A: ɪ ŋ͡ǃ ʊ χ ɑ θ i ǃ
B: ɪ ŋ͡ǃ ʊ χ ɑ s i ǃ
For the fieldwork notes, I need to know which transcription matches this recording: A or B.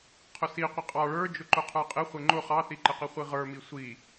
A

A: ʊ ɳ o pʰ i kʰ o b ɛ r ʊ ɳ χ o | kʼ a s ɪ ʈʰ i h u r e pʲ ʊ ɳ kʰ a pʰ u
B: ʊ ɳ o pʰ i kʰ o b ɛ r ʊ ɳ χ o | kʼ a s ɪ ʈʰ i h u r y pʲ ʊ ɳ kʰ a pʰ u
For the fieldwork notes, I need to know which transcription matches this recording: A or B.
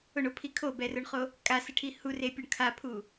A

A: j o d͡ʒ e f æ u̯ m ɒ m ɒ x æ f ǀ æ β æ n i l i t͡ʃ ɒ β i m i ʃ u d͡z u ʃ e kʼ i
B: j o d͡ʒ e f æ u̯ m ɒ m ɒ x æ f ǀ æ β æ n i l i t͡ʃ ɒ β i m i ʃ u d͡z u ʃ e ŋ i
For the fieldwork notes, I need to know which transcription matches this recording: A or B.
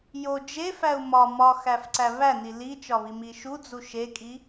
A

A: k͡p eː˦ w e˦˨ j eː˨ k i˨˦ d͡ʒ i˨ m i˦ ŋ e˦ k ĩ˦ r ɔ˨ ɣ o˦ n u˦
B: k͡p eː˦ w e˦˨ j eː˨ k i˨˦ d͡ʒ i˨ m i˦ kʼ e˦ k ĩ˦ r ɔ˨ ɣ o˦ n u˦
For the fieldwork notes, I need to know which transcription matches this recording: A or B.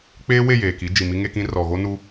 A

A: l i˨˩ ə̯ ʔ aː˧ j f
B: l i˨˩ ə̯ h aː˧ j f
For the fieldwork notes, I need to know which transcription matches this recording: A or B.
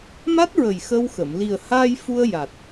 B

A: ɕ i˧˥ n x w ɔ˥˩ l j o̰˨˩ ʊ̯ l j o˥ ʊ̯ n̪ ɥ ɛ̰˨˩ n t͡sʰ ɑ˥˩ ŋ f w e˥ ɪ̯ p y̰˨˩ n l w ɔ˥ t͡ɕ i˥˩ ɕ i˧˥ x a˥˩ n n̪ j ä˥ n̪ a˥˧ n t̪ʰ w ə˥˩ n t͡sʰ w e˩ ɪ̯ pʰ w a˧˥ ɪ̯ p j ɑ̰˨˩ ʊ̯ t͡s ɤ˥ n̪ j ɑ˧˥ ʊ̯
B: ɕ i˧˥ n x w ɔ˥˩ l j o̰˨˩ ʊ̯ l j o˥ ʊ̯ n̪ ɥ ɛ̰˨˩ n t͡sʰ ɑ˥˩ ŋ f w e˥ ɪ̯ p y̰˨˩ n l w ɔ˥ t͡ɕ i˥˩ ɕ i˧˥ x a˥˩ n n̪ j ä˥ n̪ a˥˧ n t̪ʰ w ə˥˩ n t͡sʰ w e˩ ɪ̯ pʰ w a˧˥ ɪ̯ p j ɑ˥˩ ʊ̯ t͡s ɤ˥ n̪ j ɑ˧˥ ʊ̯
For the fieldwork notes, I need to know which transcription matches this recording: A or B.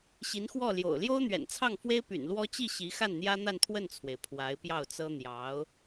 B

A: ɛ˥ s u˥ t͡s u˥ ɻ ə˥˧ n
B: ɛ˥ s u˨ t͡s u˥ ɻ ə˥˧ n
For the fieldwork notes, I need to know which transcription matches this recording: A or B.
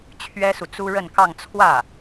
B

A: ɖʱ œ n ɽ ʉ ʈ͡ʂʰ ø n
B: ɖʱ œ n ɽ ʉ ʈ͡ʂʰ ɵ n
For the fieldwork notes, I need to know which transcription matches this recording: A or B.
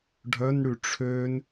A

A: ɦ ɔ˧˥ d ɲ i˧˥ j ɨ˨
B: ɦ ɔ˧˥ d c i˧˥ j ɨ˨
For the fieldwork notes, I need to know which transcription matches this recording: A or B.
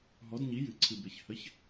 A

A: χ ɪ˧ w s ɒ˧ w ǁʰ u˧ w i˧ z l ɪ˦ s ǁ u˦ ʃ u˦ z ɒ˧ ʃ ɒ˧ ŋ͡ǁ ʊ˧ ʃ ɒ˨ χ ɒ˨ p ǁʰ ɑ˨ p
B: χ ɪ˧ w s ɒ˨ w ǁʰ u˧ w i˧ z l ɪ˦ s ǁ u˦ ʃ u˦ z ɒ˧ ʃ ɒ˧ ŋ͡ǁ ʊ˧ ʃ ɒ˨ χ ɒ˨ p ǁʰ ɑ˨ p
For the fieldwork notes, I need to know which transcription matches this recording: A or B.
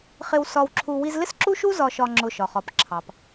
A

